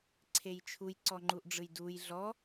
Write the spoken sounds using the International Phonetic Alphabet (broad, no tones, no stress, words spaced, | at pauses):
ǀʰejt͡ʃʰuj ǀɔŋ͡ǃuʔɖ͡ʐɯjduj ɮɔ